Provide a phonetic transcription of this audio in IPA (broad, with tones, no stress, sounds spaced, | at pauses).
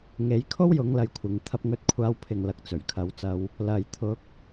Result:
ŋ e˨˧ j kʰ o˥ w j ʊ˨˧ ŋ l ɐ˨ j kʷʰ ɪ˨ ŋ t̪ʰ ɐ˧ p̚ ŋ ɵ˧ t̚ kʷʰ aː˧ w pʰ ɪ˨ ŋ l ɐ˧ k̚ t͡s ɵ˨˩ ɥ kʰ ɐ˨˧ w t͡s ɐ˧ w | l ɐ˨ j t̪ʰ ʊ˧ k̚